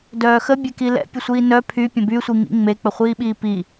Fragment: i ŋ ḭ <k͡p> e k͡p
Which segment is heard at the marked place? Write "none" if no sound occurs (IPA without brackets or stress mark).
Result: ŋ͡m